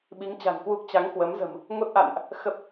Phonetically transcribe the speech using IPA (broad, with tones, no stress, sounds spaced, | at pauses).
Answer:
ɓ i˨˦ ŋ t͡ɕ a̤˨˩ n k w u˦˥ k̚ t͡ɕ a˨˦ ŋ k w ə˨˦ m z ə̤˨˩ m | ŋ o˦˥ t̚ ʔ a̰˧˨ n ʔ | x ə˦˥ p̚